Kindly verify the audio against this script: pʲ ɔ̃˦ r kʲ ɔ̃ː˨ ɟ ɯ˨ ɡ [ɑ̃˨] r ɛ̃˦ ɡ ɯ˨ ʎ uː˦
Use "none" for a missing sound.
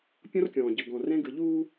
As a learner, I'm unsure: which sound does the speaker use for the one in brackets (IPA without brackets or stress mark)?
ɔ̃˨